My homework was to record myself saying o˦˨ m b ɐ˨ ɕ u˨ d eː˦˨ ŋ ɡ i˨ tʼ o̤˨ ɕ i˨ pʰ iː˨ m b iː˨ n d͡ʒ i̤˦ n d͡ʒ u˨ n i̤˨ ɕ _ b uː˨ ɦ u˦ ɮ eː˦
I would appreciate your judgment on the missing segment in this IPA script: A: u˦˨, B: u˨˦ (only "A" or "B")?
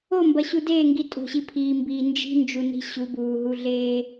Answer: B